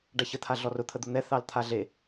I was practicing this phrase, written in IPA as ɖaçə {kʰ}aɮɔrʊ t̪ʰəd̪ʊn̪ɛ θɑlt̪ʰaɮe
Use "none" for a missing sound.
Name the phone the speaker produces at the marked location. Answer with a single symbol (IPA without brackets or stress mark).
t̪ʰ